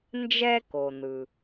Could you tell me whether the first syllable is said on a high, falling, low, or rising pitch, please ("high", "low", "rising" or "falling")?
high